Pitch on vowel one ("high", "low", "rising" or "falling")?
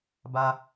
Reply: high